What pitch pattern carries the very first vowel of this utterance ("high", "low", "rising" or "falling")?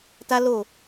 high